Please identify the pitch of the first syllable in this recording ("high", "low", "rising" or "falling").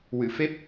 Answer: low